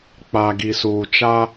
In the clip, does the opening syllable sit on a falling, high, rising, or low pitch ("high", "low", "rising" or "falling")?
low